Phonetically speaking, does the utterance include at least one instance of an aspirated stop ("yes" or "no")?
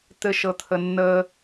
yes